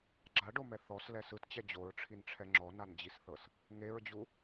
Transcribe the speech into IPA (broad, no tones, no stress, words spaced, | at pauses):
ɡ͡ǁaɖomɛ θɔslɛs ɯtt͡ɕɛ d͡ʑoɹʈ͡ʂʰinʈ͡ʂʰɛ ŋ͡ǁɔnand͡ʑisθɤs | ŋeɹd͡ʑu